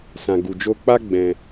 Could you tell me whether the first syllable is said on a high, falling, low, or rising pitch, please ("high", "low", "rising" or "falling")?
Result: low